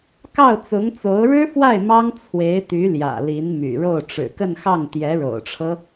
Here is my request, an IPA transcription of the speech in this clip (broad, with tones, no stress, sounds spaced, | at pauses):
k ɑ˥˩ ʊ̯ t͡s ʊ˧˥ ŋ t͡s o˧˥ ʊ̯ ɻ ɻ̩˥ f w a˥˩ ɪ̯ m ɑ˥ ŋ t͡sʰ w e˧˥ ɪ̯ t̪ y˧˥ l j ä̰˨˩ l i˧˥ n m y̰˨˩ ɻ o˥˩ ʊ̯ ʈ͡ʂ ɻ̩˨˩ k ə˥˧ n x ɑ˥˩ ŋ t̪ j ɛ˧˥ ɻ o̰˨˩ ʊ̯ ʈ͡ʂʰ ɤ˦